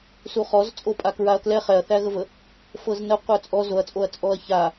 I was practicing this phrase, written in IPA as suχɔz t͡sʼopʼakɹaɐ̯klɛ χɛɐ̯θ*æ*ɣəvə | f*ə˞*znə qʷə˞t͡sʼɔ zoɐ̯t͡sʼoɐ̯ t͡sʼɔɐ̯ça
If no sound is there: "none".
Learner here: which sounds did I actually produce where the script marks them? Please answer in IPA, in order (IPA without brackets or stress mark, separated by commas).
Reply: æ, ɤ